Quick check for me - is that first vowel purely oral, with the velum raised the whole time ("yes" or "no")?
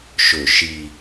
yes